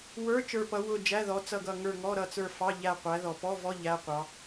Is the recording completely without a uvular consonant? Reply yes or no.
no